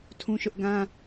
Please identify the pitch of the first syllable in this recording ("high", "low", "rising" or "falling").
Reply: high